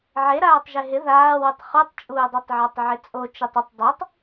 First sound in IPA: ʕ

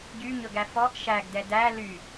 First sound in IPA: ɟ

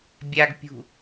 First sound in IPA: bʲ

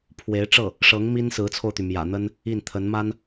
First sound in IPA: pʰ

